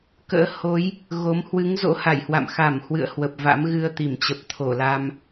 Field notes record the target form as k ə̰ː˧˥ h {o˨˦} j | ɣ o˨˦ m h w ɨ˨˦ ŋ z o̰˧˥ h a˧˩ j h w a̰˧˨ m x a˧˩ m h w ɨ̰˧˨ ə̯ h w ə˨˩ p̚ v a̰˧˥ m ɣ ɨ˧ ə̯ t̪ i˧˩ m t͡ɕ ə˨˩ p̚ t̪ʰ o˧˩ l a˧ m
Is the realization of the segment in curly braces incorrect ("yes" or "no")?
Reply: no